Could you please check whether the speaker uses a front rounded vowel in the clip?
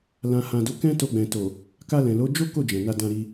no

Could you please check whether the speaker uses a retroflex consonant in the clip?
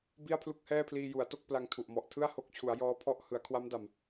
no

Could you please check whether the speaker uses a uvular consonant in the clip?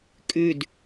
no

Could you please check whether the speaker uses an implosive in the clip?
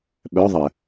yes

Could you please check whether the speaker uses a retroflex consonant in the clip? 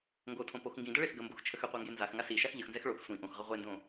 yes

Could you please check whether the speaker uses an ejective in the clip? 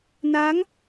no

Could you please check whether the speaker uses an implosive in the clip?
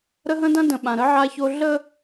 yes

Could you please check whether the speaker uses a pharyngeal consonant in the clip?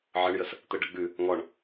yes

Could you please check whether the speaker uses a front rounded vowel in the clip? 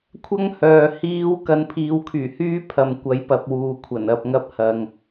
yes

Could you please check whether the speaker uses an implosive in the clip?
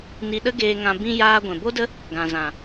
yes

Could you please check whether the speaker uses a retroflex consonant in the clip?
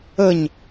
no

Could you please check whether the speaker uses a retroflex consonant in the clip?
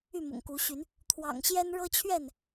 yes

